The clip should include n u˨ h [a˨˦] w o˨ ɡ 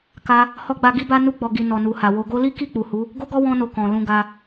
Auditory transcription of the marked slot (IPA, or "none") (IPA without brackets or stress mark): a˨